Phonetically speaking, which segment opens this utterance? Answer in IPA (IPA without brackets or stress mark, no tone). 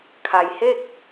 kʰ